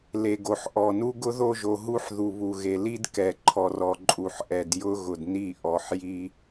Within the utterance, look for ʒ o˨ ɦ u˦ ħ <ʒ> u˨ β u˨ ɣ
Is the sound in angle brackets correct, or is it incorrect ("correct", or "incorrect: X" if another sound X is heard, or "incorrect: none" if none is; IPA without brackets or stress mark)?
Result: incorrect: ð